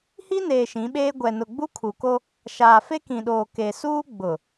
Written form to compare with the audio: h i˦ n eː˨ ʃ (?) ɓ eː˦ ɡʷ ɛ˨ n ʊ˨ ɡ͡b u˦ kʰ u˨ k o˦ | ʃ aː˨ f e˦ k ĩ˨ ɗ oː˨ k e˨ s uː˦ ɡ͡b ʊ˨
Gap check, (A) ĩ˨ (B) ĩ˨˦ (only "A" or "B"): B